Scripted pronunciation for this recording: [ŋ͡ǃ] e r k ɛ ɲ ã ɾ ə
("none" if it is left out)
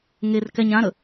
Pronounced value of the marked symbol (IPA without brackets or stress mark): ŋ